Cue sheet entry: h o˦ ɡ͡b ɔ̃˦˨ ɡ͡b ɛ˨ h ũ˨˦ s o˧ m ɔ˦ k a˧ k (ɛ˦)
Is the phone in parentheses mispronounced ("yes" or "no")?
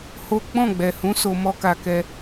no